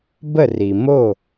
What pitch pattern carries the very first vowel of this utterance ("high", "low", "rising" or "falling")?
falling